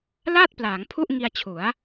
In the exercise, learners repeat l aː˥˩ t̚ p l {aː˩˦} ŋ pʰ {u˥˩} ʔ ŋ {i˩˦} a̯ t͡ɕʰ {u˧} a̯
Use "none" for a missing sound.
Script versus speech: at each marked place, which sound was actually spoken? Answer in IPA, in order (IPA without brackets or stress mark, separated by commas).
aː˩˦, u˥˩, i˧, u˩˦